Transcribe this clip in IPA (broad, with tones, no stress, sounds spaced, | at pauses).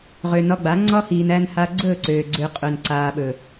ʁ ø˨ n ɒ˧ ɡ͡b a˨˦ ŋ͡ǀ ɒ˦ h iː˨ n æ˧ n h a˧ ɡ͡ǀ ɵː˦˨ ǀ øː˨ ɡ͡ǀ ø˧ qʼ ɵ˨ n ǀ aː˨ ɓ ɵ˨